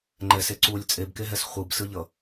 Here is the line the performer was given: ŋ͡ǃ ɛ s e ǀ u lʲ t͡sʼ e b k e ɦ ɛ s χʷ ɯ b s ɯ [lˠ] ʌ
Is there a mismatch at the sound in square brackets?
yes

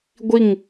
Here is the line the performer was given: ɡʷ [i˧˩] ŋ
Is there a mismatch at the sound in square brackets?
no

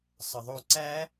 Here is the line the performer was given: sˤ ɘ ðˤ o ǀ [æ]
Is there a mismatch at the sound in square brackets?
no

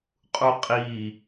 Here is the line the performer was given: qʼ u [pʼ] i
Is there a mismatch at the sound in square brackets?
yes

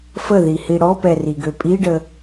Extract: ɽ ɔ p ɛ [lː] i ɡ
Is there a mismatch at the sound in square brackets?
yes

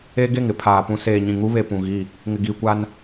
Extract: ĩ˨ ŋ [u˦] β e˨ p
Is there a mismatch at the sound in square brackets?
no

